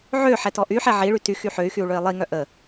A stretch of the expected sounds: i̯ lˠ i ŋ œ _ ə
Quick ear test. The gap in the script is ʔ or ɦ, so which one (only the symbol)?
ʔ